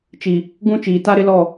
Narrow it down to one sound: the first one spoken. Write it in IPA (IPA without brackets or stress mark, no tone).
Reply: t͡ʃ